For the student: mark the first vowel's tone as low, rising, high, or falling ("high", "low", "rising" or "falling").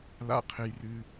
low